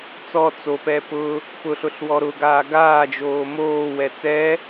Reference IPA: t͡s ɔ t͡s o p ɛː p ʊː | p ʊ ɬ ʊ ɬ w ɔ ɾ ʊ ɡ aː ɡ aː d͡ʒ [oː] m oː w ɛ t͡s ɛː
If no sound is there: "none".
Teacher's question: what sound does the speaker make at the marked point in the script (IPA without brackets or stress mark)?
oː